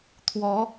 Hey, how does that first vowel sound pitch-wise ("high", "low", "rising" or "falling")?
rising